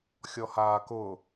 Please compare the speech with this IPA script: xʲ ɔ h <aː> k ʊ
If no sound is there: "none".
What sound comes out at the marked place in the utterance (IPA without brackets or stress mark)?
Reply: aː